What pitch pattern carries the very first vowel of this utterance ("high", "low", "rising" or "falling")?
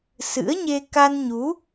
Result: rising